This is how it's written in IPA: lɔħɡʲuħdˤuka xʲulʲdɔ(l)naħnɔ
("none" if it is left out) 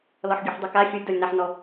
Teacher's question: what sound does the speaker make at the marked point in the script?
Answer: lʲ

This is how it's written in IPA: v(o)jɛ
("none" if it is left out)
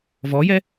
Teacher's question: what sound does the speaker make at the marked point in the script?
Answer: ɔ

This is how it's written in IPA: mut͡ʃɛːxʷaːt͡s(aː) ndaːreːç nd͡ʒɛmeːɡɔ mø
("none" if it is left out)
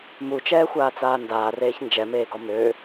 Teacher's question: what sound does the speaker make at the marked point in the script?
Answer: aː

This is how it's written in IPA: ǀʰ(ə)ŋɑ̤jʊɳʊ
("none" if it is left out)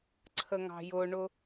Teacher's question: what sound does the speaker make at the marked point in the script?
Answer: ə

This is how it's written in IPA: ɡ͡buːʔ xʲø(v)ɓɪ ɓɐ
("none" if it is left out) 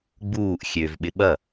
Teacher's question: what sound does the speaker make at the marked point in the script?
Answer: v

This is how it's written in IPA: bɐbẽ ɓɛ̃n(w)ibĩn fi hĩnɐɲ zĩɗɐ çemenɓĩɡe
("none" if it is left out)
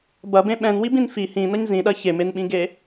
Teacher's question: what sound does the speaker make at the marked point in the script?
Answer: w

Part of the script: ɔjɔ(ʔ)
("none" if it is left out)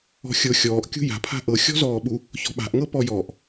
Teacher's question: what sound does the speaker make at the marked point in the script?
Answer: ʔ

